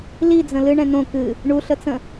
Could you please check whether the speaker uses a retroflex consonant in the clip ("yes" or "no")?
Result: yes